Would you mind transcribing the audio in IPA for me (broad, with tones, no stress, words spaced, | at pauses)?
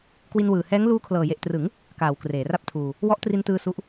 kwi˧nwɯː˨˩hɛː˦˥ŋ luː˦˥kʰlɤː˨˩je˨˩ʔtrɯ˩˦ŋ | kaː˩˦w kreː˩˦ra˥˩p̚tʰuː˧ | wɔ˦˥ʔtri˧ntɯː˧ su˦˥ʔ